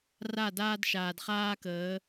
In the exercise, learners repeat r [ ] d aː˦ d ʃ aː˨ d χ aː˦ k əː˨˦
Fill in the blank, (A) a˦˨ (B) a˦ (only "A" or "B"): A